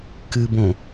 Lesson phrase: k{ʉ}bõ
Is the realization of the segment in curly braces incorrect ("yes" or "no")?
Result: yes